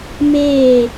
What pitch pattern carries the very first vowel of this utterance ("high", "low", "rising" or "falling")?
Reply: falling